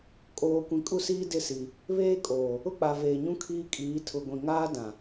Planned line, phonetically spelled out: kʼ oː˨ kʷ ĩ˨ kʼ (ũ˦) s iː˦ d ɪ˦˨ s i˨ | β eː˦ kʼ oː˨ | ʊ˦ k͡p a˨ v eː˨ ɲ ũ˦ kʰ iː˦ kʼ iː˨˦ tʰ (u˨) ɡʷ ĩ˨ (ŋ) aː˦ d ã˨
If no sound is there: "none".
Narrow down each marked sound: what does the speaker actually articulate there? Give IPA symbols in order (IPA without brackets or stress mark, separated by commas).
u˦, ʊ˨, ŋ